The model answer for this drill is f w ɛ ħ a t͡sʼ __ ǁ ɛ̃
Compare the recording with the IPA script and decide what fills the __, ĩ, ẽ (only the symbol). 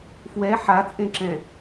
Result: ẽ